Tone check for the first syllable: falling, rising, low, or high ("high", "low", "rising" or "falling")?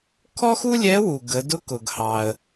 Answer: high